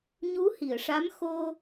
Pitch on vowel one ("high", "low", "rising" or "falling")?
rising